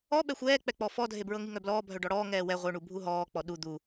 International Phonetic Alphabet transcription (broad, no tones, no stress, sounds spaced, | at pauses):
ɔ ɓ ɛ xʷ ɛː k͡p ɛ k͡p ɔ f ɔ dʱ e b ɹ ɤ ŋ i ŋ œ b l ɔː bʱ œ ɖ ɔ ɽ ɔː ŋ ɛː w ɛ ʁʷ œ ɳ u bʱ u ɦ ɔː k͡p ɔ ɗ u d̪ u